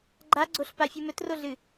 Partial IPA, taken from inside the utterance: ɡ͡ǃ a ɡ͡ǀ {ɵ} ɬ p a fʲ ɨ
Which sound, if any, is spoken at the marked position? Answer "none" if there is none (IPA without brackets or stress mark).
o